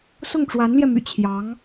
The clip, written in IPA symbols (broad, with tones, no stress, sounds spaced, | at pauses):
s ʊ˥˩ ŋ ʈ͡ʂ w a˧˥ n l j ɛ˧ m y̰˨˩ t͡ɕʰ j ɑ˧˥ ŋ